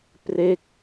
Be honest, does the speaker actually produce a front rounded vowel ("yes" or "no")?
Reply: no